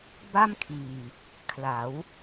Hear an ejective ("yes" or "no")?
no